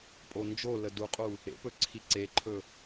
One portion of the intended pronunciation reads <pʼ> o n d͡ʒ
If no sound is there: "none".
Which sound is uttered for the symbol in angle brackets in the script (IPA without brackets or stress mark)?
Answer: pʼ